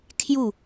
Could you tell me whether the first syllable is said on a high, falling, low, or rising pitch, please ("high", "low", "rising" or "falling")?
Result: falling